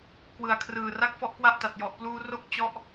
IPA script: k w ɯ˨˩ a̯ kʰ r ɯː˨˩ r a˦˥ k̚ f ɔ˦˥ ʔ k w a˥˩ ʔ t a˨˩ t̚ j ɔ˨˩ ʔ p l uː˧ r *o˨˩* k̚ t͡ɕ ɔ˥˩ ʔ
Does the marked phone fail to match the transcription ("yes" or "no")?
yes